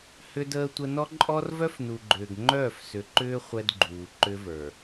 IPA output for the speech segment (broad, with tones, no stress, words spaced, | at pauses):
hʏ˦dəː˦tʷə˦ nɔ˦ǃʼɔ˦rvœ˦fnu˨ ɡ͡ǃʏː˨ɡ ŋ͡ǃœː˦˨fsʏ˨˦ǃʏː˦ χʷɛ˦dɡ͡ǃuː˨ǃʏ˦və˞˨